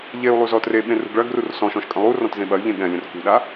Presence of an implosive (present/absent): present